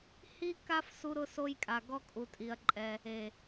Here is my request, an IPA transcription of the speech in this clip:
hi˦ka˦f su˦ɾʊ˦so˦jkʼa˧ ɡɔ˦kʼu˧tʼi˧ɐ̯ǃʼɛ˧ | e˨

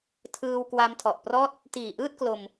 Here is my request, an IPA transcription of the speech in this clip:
tʰɯː˧w kwa˧mtʰɔ˨˩ʔprɔː˥˩t̚ | tiː˨˩ʔɯː˥˩t̚klo˧m

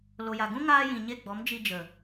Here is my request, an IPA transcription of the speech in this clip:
lo˨ja˨ɡũ˦ ŋaː˦jĩ˨ɲe˦˨ɡ͡bɔ˨˦m d͡ʒi˧ d͡ʒə˨

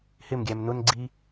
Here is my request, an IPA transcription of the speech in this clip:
hɪmɡʲæm nʊnɡ͡ǀi

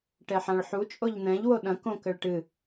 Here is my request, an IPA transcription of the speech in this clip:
ʈɛħãɭħu t͡ʃʼoʎn̪ɛ̃ʎ woɗɐ̃ kõkɘɭʈɨ

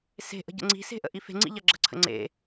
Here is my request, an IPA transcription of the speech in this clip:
se̤ʔə̤ ɟə̰ŋ͡ǀi̤se̤ ʔə̰ʔife̤ŋ͡ǀḭ ʎɐɡ͡ǁə̤ǀʰə̰ ŋ͡ǀḛ

